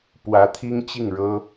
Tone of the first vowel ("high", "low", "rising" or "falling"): rising